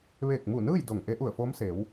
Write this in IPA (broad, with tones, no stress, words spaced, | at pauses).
ʋeː˧˩k̚mu˧˩nɯː˥˨j do˧˩ŋ ʔe˧˥ʔu˧˩ə̯foː˧˥mseː˩˧w